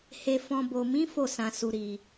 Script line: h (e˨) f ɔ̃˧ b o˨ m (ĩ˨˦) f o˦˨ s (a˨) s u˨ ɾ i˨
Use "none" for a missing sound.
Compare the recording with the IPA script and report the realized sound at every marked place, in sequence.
e˧, ĩ˨˦, ã˨

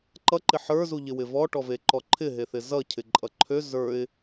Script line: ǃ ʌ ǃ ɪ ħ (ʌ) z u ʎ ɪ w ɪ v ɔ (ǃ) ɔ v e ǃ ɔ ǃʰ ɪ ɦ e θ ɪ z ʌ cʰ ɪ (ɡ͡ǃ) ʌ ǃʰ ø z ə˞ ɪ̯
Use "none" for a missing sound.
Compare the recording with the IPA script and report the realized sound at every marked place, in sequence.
ə˞, ʈ, ǃʼ

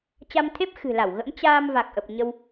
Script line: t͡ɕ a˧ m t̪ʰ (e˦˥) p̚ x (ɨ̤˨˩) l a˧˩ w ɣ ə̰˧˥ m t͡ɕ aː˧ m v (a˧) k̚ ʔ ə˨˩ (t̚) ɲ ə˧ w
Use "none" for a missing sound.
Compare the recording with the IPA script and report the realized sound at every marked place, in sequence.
e˦˥, ɨ̤˨˩, a˨˩, p̚

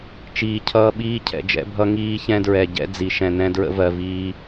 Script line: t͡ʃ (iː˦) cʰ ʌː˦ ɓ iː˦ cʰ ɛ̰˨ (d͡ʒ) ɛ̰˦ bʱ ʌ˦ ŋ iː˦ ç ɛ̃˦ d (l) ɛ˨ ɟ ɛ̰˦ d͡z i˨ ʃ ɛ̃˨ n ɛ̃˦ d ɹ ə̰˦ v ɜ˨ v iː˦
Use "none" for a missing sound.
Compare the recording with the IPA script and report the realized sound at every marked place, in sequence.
iː˨, d͡ʒ, ɹ

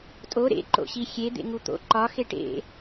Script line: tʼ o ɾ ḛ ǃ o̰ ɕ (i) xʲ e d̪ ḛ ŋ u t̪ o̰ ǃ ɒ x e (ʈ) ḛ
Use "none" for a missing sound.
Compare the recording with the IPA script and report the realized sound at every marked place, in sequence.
i, ʈ

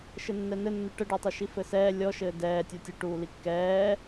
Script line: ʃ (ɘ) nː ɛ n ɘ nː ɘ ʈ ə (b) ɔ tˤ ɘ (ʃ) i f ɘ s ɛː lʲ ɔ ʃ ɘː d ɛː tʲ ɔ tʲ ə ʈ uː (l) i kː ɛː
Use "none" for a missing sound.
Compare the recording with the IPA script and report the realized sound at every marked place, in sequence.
ɘ, ɖ, ʃ, l

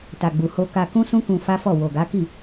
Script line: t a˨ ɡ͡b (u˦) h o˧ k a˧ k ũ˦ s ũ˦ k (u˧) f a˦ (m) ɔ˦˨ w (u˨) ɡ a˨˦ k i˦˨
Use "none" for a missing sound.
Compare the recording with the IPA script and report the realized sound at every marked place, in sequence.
u˨, ũ˧, f, o˨

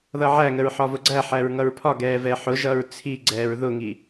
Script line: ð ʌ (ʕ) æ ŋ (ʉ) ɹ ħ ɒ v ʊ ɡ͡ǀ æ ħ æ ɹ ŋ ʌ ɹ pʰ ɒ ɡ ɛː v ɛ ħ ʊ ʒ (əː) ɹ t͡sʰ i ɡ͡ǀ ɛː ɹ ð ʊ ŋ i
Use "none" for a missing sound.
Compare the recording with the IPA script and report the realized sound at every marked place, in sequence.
ʕ, ə, ʌː

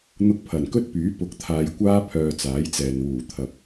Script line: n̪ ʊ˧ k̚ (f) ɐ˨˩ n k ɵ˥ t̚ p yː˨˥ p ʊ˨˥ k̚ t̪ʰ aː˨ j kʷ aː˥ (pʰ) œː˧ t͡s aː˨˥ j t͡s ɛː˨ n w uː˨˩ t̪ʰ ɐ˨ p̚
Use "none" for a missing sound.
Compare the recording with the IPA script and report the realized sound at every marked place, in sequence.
pʰ, pʰ

